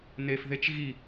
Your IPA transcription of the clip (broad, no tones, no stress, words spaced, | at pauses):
nef ðet͡ʃ ɣi